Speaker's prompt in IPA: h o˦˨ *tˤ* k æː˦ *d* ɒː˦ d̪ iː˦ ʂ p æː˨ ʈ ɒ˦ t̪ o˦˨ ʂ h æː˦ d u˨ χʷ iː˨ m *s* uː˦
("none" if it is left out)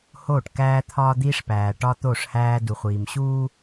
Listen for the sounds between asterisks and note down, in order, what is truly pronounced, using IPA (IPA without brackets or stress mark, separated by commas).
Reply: ʈ, t̪ʰ, ɕ